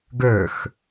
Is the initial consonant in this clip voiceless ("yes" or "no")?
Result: no